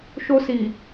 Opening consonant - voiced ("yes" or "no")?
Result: no